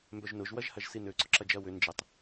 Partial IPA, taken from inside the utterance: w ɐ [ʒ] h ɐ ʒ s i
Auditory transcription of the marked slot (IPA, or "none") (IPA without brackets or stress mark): ʒ